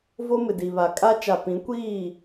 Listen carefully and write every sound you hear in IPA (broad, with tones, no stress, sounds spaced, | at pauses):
v o˦ m ɪ˨ d i˨ β a˨ kʼ a˦ t͡ʃ a˨ p ĩ˨˦ kʷ iː˦˨